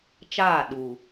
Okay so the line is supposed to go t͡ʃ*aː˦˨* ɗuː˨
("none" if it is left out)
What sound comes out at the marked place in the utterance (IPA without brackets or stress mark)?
aː˦˨